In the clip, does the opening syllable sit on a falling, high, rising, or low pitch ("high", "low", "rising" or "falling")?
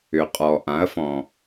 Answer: low